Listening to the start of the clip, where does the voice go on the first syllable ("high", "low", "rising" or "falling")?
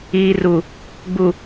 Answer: low